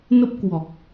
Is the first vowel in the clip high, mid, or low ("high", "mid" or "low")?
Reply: mid